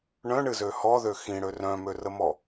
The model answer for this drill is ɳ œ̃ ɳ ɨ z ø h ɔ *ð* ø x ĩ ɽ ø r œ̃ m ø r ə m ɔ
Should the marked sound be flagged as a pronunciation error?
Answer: no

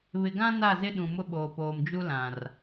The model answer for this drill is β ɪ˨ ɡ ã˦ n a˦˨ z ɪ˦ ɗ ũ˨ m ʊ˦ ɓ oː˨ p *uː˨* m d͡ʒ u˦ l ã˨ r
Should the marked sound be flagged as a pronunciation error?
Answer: yes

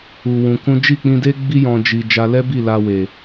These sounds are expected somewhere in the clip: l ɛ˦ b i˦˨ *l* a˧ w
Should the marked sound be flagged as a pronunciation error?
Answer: no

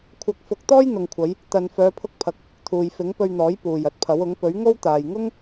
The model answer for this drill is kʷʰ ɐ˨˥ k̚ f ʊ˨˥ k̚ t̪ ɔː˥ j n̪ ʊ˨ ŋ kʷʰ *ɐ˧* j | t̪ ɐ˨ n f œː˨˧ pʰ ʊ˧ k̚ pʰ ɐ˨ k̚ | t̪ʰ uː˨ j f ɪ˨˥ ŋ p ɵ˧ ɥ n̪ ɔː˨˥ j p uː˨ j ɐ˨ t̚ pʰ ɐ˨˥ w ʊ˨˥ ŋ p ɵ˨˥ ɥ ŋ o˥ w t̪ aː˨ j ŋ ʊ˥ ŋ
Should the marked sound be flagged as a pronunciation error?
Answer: yes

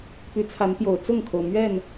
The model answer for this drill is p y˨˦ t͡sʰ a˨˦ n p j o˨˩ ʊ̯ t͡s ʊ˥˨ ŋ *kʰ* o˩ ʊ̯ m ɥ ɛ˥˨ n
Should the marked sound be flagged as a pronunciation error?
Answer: no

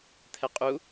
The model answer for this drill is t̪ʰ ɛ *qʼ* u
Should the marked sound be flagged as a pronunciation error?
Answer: no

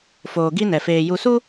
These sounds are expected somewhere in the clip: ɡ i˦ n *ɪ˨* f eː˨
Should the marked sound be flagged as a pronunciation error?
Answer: yes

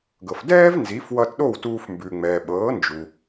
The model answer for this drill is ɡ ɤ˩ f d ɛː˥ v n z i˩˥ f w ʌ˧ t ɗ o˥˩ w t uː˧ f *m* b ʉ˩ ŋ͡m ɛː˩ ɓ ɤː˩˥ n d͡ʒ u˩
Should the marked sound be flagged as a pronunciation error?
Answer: no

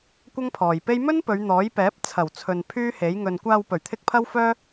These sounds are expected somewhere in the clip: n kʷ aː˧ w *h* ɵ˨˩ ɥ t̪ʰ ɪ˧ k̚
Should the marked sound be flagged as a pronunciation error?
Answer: yes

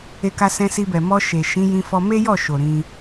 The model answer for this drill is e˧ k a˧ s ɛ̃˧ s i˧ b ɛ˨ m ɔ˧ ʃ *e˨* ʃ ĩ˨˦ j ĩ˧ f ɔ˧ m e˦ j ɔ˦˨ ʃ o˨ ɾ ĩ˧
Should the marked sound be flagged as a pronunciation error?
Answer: no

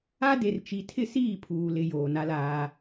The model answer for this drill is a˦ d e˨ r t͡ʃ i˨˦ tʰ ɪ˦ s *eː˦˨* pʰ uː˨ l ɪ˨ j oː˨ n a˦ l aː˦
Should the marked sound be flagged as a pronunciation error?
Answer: yes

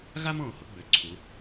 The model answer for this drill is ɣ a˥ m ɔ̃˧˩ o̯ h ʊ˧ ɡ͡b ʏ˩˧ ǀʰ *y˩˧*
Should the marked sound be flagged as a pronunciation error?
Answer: yes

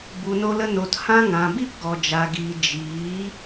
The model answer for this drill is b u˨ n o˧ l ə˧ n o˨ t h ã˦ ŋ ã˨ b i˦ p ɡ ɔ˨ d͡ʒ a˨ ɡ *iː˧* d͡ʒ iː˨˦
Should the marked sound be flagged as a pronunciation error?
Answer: yes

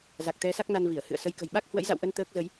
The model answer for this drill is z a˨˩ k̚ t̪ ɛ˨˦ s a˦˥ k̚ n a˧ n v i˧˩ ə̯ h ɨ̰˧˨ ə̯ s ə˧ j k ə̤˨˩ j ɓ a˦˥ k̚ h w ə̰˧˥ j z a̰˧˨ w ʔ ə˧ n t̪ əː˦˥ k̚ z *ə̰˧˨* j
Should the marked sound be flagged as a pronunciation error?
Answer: yes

